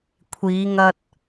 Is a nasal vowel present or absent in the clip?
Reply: absent